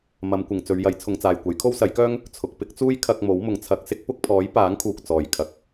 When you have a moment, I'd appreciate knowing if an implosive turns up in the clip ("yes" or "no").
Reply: no